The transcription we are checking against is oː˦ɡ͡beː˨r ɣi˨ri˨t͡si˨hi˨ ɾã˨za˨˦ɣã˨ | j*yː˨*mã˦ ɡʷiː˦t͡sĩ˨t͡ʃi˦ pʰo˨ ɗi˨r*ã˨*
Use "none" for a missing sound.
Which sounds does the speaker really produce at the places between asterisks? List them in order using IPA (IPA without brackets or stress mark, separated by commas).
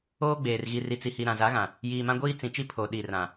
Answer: iː˨, ã˨